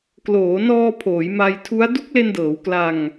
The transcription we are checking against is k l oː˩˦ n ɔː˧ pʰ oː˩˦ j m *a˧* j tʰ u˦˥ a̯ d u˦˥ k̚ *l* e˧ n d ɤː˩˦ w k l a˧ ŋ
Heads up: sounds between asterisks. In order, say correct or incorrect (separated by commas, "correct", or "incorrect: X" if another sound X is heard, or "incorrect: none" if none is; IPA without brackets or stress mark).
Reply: correct, correct